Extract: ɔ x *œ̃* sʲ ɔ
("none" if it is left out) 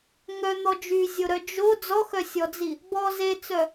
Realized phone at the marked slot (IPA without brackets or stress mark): œ